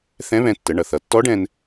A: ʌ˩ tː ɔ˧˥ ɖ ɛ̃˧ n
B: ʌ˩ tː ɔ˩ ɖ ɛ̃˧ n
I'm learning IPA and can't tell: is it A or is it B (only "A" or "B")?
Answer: A